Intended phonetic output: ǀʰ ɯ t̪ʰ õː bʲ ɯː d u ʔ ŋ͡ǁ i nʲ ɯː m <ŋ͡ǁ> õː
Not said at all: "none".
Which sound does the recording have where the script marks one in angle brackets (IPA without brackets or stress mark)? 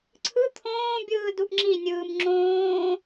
ŋ͡ǁ